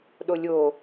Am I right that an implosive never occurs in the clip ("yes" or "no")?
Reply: no